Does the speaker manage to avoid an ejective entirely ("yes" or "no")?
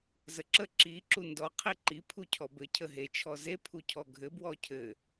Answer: yes